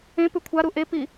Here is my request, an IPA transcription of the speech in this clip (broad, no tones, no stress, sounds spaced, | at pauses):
ẽ p ʉ kʷʰ a ɾ u ʔ e p i